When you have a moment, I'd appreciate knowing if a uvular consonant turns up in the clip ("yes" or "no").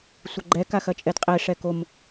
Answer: yes